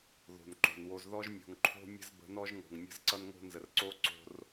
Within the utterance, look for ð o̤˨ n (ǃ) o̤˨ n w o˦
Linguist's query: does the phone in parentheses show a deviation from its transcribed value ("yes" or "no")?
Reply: no